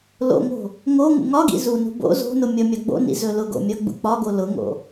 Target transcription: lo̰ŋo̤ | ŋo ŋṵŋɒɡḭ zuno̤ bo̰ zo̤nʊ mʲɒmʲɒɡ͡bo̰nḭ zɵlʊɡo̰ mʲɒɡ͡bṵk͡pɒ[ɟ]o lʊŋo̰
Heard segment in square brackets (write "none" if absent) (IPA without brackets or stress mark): ɡ